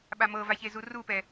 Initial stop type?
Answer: implosive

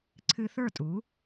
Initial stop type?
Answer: click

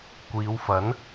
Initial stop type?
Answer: plain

